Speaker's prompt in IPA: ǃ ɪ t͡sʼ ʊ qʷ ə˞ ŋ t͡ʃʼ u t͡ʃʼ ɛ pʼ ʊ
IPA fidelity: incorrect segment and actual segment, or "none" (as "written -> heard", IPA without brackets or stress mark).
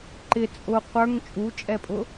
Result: none